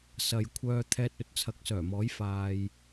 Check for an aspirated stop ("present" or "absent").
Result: present